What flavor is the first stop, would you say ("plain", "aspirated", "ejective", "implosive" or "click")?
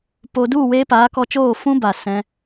plain